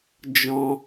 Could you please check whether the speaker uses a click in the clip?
no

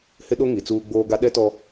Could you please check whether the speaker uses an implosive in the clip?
yes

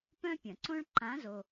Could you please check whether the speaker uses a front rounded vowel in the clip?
yes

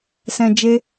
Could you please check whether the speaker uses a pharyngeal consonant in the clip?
no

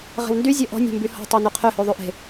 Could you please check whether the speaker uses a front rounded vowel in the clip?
yes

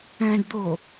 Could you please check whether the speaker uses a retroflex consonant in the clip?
yes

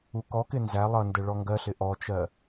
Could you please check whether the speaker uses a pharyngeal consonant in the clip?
no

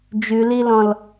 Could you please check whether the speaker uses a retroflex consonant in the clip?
no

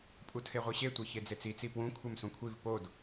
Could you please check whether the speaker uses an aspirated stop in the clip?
yes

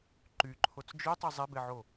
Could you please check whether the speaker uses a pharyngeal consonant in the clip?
yes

